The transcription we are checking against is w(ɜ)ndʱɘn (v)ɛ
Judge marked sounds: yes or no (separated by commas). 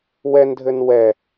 no, no